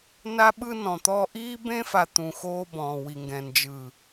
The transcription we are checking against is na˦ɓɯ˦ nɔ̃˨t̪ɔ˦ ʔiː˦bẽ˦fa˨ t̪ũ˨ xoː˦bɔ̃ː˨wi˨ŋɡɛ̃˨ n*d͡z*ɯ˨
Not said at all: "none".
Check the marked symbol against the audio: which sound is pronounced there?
d͡ʒ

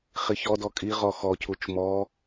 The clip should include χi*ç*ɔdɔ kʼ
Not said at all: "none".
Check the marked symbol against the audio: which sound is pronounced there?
ç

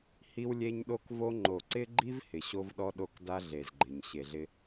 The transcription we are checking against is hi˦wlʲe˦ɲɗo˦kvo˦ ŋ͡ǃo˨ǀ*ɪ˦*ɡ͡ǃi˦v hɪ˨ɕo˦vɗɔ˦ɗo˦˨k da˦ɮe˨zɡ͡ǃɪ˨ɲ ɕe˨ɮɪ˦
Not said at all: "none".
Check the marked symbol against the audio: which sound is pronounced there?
ɪ˦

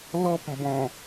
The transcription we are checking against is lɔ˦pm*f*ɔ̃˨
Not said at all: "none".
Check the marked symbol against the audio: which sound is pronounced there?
b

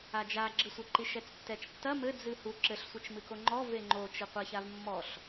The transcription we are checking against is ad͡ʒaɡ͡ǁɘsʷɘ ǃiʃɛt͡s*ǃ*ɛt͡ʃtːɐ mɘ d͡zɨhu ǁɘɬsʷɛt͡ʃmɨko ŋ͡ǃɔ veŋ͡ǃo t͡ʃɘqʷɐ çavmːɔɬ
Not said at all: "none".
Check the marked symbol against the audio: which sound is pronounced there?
tː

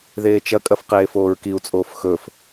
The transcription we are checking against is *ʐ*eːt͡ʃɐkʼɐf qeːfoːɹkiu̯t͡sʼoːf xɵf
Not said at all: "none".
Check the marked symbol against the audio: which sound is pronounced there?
ð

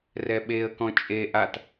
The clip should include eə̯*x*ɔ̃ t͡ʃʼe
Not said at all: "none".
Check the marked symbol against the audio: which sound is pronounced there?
k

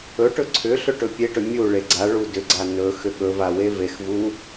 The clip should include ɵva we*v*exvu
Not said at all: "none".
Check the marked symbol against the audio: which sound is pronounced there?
v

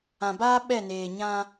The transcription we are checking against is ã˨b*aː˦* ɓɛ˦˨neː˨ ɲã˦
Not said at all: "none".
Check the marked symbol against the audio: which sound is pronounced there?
aː˦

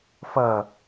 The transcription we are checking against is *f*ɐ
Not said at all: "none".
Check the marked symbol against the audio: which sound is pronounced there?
f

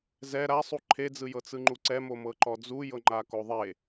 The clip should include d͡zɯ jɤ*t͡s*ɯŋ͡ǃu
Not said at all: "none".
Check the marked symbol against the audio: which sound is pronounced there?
t͡s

